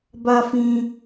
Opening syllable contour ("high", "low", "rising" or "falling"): high